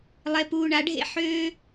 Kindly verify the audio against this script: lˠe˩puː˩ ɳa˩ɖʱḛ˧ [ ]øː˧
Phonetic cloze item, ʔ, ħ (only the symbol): ħ